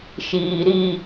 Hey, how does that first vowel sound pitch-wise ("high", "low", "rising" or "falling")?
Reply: low